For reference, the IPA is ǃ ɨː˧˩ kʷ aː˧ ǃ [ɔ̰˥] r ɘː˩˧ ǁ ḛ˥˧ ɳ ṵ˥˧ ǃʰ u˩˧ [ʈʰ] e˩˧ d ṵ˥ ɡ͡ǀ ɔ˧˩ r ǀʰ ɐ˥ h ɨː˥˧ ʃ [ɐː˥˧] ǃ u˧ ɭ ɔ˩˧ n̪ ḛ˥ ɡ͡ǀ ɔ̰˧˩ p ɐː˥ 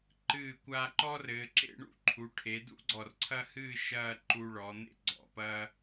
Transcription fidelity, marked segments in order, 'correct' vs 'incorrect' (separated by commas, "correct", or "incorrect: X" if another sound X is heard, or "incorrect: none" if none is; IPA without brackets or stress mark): incorrect: ɔ˥, correct, correct